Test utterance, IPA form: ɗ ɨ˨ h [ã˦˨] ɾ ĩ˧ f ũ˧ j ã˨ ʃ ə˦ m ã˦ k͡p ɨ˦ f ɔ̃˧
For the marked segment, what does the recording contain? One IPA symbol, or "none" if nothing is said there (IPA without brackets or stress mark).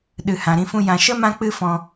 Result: ã˨